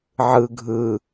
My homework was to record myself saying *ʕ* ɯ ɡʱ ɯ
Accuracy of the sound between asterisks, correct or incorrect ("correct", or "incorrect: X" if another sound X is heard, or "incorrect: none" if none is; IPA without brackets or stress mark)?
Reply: correct